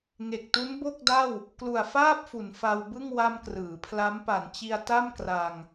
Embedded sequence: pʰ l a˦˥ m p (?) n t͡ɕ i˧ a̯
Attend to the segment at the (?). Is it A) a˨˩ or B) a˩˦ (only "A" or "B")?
B